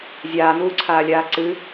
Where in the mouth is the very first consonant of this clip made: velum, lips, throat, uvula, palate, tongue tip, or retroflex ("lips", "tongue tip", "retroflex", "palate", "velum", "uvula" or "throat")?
tongue tip